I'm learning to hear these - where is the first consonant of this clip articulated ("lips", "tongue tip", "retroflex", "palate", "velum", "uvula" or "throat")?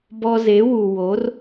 lips